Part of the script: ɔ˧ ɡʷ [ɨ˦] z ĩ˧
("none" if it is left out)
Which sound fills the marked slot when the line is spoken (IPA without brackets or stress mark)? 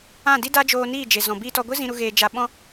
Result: ɨ˦